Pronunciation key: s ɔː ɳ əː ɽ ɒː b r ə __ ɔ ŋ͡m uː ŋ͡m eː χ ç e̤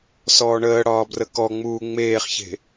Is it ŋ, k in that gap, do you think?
k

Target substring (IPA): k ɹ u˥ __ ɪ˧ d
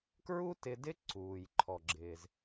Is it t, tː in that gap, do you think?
t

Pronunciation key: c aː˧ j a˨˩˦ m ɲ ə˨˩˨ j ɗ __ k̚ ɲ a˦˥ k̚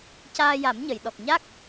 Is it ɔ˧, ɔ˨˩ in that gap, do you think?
ɔ˨˩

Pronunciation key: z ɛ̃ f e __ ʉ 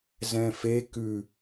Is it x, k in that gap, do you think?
k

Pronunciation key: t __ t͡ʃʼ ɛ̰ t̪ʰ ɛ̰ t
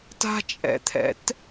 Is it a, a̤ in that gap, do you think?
a̤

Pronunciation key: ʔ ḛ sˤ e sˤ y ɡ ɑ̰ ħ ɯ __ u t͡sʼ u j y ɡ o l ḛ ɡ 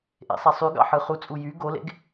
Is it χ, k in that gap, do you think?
χ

